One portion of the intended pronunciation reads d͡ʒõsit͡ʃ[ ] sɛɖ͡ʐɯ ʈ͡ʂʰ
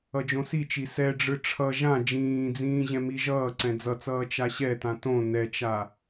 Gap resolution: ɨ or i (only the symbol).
i